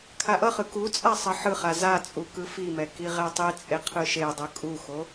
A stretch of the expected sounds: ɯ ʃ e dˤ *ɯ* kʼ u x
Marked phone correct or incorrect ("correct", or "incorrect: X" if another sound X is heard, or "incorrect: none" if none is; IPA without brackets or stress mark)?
correct